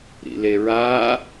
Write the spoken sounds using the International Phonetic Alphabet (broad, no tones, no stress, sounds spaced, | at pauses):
ɾ ḭ l e ɹ a